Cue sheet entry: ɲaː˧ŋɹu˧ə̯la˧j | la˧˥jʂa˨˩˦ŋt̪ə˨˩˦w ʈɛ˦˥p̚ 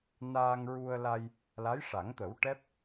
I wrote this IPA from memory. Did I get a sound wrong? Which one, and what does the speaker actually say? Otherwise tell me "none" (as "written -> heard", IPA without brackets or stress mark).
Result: ɲ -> n